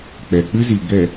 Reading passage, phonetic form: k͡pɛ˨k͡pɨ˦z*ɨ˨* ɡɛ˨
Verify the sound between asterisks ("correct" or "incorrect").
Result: incorrect